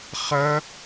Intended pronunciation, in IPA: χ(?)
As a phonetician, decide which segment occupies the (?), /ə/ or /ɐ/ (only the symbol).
ɐ